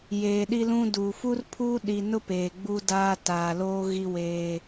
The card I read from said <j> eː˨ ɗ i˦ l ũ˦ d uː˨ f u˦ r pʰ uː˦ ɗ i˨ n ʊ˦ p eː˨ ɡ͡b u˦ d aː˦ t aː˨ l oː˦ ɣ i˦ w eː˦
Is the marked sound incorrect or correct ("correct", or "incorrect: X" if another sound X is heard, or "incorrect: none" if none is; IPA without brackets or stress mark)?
correct